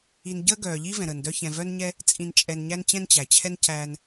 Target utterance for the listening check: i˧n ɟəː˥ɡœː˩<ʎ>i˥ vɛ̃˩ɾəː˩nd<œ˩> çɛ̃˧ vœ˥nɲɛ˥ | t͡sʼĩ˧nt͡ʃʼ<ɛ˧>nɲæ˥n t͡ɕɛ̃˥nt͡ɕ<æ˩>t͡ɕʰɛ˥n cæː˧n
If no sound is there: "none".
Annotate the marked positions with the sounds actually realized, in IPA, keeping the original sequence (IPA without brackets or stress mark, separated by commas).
ʎ, œ˥, ɛ˧, æ˩